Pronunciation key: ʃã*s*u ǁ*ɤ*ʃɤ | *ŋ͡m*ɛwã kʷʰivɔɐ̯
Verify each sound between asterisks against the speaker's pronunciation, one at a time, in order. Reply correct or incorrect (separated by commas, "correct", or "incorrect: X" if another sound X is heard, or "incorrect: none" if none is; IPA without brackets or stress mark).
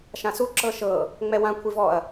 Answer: correct, correct, correct